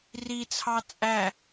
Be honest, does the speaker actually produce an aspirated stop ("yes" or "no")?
yes